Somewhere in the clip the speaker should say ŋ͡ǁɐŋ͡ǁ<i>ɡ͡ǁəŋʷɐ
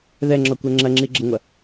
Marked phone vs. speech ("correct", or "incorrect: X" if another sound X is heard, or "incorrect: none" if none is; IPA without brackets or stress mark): correct